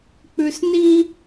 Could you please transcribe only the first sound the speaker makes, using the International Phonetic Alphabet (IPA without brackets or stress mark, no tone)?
k͡p